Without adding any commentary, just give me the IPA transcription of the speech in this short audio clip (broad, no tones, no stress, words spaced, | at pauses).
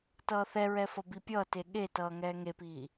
tʌːθɛɹɛ fʌbipʲʌːte ɠetʌː ŋɛːŋepiː